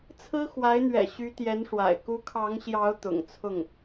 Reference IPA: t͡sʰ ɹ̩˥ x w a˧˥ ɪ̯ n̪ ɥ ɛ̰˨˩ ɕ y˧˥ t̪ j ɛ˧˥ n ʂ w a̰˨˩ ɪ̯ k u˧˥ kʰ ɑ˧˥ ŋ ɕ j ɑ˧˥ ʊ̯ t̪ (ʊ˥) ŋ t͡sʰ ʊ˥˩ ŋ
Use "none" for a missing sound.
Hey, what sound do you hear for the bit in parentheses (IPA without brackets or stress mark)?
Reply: ʊ̰˨˩